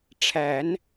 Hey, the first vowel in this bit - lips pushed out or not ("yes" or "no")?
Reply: no